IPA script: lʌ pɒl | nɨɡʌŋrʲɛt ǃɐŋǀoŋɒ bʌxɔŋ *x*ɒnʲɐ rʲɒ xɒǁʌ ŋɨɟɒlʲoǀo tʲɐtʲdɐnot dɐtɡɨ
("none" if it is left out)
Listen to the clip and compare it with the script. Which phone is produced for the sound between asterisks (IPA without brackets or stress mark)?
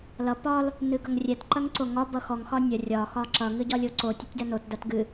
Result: x